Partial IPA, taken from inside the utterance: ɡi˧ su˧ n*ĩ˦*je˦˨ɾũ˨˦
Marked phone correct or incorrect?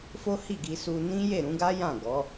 correct